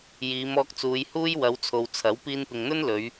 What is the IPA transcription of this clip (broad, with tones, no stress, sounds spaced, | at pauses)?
j iː˨˧ m ɔː˧ k̚ t͡s uː˨˧ j h uː˥ j w ɐ˨˧ w t͡sʰ o˨ w t͡sʰ ɐ˨˥ w p iː˧ n p ɪ˨ ŋ n̪ ɵ˥ n l ɵ˨˧ ɥ